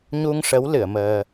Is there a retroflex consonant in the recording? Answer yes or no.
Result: yes